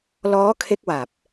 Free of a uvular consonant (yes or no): yes